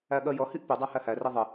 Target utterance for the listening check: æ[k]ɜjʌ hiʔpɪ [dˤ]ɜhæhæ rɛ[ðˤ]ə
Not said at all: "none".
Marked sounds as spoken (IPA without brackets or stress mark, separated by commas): ɠ, dˤ, ðˤ